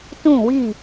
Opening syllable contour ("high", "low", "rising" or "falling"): falling